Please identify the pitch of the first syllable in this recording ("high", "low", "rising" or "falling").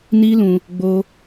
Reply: high